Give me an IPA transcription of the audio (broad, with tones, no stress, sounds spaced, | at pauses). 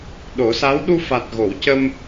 ɗ o˨˩˦ s a˧˥ w ɗ u˧ f a˨˩ t̚ ɣ o˨˩˨ w c ə˧ m